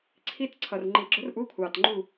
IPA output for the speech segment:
ǀʰi˧˥t ǀʰʌ˩rŋ͡ǃi˨˩˦ ɡ͡ǁʊ˧˥rʔuː˧˥kʷʰɑː˩t ŋ͡ǃu˥˨

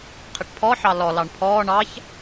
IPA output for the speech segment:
qʰɪʈpʰɔħɑ lɔlɑɳ pʰɔː ɳɑç

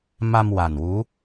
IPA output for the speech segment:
ma˧m wa˨˩nwu˧˥

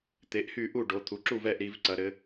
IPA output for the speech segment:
t̪e˩˧ʔ hy˥˩ʔu˥˩ɖo˩˧ t̪ʰu˩˧ǁu˥˩vɛ˥˩ʔ ɾi˩˧v ǀɐ˩˧ɾɘ˩˧

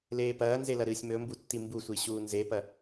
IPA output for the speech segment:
leːpɐːnzelɐ ɾɨːsʲmɵmbu tːimbusʷi ɕuːnzepɐ

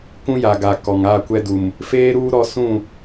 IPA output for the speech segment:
kũ˦ja˨ɡa˨ kɔ˨ŋa˦˨kʷɛ˦ du˨m | feː˦ɾuː˦ ɾɔ˦ sũ˦˨

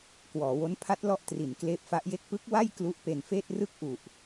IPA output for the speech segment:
kwɔː˩˦wo˦˥n pʰa˦˥t̚lɔ˦˥ʔtri˩˦n kleː˦˥p̚fa˦˥ʔje˥˩k̚ pɯ˦˥k̚ wa˥˩j klu˦˥ʔpe˧nfeː˥˩t̚ rɯ˦˥k̚ʔu˨˩ʔ

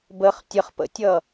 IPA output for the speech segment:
bəχ tʲəχpə̰tʲʌ

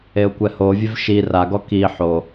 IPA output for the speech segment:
eʊ̯kʷɛhovʲev ʃi raɡɔ ki ħo

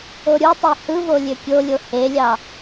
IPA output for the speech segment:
oɾʲutˤi hɯvo lʲøkʲolʲo helʲɑ

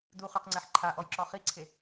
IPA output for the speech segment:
duχyqŋ͡ǀɛħ ǃʰaʔɔjǁɔ χiǀʰe

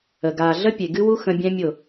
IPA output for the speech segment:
ə˨ ɡaː˨ɮə˦pʲe˨ ɡɨ˦wu˦ xə̃˦ bʲɛ̃˦mʲʊ˦˨

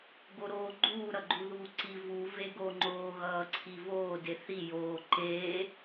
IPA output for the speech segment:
ɡoɾoːɡ͡ǃuː ɾʌɡ͡ǃuðuːǀi vu veɡo ŋ͡ǃoːɣʌːǀʰivoː deθi joː ǃeː

